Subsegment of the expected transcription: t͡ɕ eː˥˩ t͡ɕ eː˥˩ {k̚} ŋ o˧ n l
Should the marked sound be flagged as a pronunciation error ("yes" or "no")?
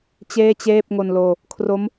yes